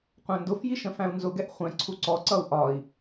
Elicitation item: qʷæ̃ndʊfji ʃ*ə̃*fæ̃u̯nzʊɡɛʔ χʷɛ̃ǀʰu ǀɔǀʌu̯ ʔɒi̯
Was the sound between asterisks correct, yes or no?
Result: yes